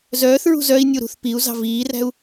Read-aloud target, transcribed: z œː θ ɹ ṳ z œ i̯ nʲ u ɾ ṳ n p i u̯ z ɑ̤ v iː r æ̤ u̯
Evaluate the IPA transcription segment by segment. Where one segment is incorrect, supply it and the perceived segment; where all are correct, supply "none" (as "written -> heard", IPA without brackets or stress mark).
n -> θ